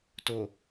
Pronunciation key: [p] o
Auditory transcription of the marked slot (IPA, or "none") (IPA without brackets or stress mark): t